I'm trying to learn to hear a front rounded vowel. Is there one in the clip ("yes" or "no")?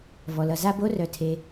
yes